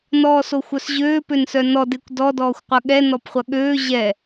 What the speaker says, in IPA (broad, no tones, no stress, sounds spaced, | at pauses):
n ɔː s o xʷ œ s ʑ øː p ø n s œ n ɔ d e kʷ d ɔ d ɔː xʷ qʷ ɐ ɠ ɛ n ɔ p χʷ ɐ ɠ øː ʑ ɛ